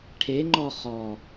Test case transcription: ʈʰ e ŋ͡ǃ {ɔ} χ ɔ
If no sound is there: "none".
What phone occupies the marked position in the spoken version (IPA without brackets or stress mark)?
ɔ